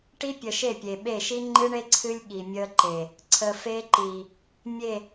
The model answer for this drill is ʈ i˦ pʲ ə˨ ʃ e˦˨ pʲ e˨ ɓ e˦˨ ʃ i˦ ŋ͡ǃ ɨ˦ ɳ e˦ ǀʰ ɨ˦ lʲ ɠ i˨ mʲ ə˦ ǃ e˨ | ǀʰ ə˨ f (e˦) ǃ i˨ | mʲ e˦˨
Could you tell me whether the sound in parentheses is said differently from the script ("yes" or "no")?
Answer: no